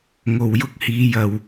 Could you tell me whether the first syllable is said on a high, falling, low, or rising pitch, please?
low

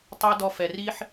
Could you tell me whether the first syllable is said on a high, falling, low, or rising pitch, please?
high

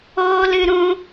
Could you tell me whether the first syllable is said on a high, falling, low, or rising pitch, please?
high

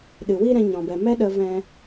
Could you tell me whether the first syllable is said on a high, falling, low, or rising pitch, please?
low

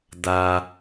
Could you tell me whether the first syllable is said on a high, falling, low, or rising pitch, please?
low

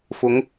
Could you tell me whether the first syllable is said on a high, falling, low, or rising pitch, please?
rising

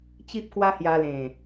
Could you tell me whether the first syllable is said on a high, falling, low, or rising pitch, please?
high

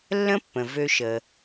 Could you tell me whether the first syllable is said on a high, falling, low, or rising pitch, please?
high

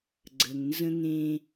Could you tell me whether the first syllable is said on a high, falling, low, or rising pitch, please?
low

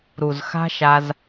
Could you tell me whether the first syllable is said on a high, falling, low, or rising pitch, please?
low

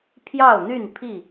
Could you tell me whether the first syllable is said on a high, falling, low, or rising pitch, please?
falling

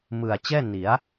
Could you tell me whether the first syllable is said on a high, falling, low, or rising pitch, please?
low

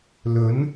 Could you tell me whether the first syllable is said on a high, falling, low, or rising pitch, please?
rising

